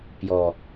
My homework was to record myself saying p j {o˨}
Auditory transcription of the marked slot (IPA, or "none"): ɔ˨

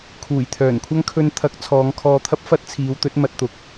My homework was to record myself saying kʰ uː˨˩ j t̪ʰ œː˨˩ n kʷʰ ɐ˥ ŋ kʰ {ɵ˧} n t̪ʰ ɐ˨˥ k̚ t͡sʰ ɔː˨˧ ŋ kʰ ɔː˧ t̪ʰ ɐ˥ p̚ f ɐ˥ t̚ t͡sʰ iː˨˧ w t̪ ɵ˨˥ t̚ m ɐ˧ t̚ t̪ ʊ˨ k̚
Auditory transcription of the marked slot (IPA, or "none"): ɵ˧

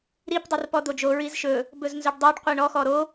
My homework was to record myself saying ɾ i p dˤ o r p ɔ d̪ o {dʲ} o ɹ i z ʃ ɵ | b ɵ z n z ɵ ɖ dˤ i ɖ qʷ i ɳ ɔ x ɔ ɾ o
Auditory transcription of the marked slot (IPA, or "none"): d͡ʒ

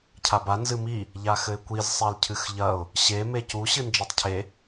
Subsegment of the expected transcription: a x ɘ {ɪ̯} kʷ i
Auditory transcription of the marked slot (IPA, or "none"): ɪ̯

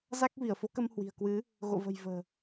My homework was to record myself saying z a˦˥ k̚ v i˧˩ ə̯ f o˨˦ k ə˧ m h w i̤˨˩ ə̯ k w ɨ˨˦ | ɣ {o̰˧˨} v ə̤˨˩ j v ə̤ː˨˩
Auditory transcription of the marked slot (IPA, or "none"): o̰˧˨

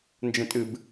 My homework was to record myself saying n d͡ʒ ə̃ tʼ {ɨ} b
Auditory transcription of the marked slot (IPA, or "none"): ɨ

